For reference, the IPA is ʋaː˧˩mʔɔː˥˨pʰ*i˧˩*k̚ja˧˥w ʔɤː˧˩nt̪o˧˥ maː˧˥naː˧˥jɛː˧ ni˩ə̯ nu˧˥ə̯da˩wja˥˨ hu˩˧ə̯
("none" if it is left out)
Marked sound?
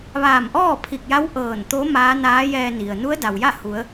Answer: i˧˩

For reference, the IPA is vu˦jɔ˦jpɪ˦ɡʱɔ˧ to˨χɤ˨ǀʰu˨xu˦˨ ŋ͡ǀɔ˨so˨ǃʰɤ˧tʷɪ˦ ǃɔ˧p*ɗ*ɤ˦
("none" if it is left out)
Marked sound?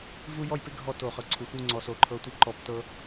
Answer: t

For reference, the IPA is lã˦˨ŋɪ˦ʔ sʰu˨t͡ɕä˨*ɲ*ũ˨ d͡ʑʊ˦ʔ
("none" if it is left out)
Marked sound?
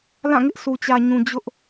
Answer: ɲ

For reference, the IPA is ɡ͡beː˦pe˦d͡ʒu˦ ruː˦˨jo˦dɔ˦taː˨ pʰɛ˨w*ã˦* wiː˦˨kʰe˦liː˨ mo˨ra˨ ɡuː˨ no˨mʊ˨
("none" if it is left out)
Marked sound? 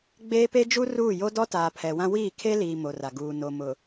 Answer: ã˦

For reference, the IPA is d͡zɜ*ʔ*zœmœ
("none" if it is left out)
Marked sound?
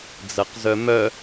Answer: q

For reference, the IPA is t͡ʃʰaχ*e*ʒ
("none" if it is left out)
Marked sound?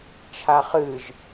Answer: ɨ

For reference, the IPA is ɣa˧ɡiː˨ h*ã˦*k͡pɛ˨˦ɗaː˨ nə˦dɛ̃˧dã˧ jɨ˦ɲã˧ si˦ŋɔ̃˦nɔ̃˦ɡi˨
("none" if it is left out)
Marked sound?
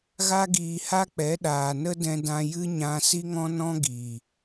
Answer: a˦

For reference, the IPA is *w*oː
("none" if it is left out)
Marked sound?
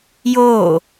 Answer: j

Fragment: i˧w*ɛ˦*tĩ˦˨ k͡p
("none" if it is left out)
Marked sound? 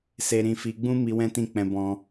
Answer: ɛ̃˦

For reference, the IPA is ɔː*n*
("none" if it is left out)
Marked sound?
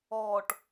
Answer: ʈ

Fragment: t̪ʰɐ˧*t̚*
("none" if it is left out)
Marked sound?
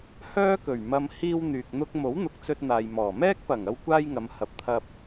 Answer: p̚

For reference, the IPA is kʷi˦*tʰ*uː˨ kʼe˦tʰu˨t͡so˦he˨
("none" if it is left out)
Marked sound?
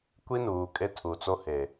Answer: n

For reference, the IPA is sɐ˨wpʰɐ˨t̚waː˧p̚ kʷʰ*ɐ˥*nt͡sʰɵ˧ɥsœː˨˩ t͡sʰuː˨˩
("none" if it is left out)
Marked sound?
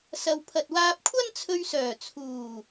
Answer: ɐ˥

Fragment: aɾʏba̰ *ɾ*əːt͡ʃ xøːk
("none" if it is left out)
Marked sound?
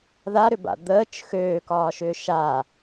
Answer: d̪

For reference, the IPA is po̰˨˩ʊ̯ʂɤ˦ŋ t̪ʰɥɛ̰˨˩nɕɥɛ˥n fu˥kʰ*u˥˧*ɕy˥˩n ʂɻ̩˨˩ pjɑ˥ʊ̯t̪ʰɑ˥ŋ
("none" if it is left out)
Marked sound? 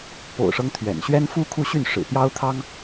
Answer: u˥˧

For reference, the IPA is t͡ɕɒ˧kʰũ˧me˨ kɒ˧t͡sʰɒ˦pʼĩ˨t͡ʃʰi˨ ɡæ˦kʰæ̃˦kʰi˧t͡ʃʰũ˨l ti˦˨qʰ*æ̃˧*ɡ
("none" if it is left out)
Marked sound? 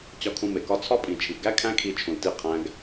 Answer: æ̃˦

